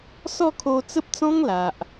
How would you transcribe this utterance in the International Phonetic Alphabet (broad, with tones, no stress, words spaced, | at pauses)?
sɔ˥˧kʰo˧t͡sə˦p̚t͡sɔ̃˦ŋ la˨ʔ